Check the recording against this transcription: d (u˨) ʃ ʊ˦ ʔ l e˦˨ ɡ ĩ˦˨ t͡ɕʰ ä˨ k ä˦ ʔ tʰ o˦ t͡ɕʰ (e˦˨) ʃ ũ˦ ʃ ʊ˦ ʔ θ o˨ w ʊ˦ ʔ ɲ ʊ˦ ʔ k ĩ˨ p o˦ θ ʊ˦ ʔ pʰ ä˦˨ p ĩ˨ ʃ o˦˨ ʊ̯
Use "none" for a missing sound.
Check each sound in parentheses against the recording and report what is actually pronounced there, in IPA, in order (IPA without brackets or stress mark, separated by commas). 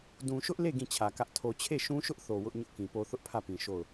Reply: ũ˨, e˦˨